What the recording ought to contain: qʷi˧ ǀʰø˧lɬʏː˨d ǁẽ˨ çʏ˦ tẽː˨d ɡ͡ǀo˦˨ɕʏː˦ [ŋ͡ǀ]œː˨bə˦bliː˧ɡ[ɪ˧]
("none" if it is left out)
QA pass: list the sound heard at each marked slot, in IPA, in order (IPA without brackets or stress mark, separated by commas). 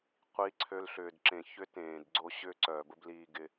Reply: ǀ, ɪ˧